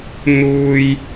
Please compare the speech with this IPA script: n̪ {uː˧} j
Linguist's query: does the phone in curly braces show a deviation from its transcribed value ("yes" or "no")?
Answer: no